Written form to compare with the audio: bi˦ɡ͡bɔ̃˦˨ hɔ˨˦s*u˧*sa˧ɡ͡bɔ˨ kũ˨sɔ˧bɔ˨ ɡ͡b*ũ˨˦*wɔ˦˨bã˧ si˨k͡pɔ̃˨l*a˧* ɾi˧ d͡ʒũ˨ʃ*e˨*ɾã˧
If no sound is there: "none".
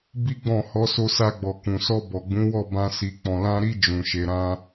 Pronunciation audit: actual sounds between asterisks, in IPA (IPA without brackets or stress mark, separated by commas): o˧, ũ˨˦, ã˧, e˨